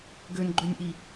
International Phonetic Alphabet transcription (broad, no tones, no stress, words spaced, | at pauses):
ɡønɡ͡ǃønʲʔi